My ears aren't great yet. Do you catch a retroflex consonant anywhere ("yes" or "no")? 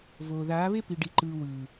yes